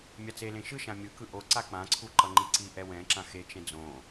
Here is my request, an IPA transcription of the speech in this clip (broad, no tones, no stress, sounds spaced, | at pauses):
mʲ a t͡s e l ẽ ʃ ɯ ʃ ã mʲ ɯ k ɯ ʔ o ǀ a k͡p ã ǀʰ u ǃ ʌ ŋ͡ǃ i ǀ i ʔ ɛ w ɛ̃ ǁ ã x e t͡ʃ ɛ̃ d͡z õ